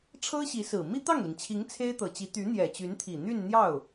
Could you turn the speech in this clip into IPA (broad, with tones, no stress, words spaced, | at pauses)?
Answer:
ʈ͡ʂʰɤ˥ɕi˧˥sɹ̩˨˩ mi˥t̪ɑ˥˩ŋli˩ŋt͡ɕʰi˧˥ŋ t͡sʰe˥ɪ̯t̪ɤ˨˩t͡ɕi˧˥ t̪y˧˥n̪jɛ˨˩t͡ɕy˧˥nt̪ʰi˨˩ n̪y˥˧nn̪jɑ˥˩ʊ̯